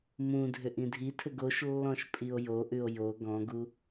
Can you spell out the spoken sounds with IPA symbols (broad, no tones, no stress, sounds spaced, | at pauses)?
m ũ dʱ ʏ ʔ ĩ dʱ i tʰ ɘ ɡ o ʃ lː ɔ̃ ʃ pʼ i o̯ j o ʔ ʉ o̯ j o ɡ ɔ̃ ɡ u